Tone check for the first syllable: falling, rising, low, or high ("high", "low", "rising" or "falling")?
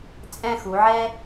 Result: falling